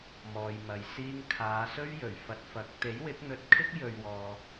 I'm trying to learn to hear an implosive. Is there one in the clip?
no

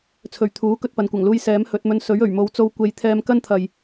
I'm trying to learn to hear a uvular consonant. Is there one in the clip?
no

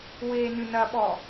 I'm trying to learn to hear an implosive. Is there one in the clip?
yes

